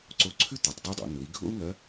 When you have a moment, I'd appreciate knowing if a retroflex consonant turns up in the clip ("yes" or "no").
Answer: no